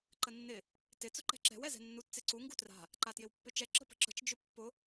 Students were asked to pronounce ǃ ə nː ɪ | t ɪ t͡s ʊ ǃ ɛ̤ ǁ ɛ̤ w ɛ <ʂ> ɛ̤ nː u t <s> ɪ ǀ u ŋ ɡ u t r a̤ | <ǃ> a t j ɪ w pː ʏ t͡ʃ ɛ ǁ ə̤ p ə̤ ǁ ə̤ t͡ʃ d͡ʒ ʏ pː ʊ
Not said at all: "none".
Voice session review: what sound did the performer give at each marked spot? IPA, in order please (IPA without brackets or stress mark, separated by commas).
z, t͡s, ǃ